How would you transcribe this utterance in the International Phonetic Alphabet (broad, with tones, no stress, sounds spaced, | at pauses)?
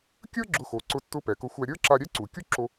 kʲ ə˞˥ ɡ͡ǁ ʊ˧ x o˩ ǀ ʊ˧ tː ʊ˧ p ɛ˩ k ʊ˧ xʷ æ˧ ɾʲ ə˞˥ ǁ a˧ ɾʲ ɛ˥ ǀ u˩ kʲ u˥ ǁ o˧